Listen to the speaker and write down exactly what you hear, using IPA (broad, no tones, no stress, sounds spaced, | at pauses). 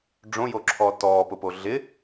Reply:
ɖ͡ʐ õ j o ǁʰ ɔː t ɔː p ʊ p o ɮ ɪ